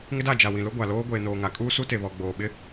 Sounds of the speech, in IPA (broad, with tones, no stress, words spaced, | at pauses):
ŋɪ˦da˦˨ d͡ʒa˨wĩ˨lʊ˦ ɡʷa˨loː˦ ɡʷeː˨noː˨ŋa˨kʼuː˦ su˦te˨βɔ˨ ɡ͡boː˨ɓɪ˦